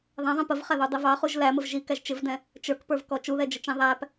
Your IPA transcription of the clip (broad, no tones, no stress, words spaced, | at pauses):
ðˤæ̃ðˤĩ pəvχæðudˤi vɑχuʒ læməv ʒikæʒ t͡ʃɪvdɛ̃ | t͡ʃə˞kpə˞vkɔ t͡ʃuðɛd͡ʒət͡ʃĩ ðˤæp